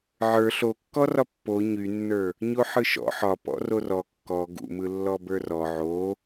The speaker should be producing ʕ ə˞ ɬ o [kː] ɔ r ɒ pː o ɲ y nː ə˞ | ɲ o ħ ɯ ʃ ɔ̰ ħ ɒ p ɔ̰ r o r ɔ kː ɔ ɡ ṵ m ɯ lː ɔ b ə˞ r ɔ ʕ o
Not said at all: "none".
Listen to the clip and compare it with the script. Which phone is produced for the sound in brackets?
kː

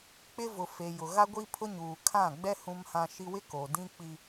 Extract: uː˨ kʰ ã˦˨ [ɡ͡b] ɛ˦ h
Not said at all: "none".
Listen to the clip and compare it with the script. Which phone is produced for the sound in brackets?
ɡ͡b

